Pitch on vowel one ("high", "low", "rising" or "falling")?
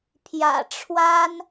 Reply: low